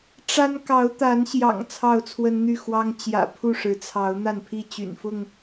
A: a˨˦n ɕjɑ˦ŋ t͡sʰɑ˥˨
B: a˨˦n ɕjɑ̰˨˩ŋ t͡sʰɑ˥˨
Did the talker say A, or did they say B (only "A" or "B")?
B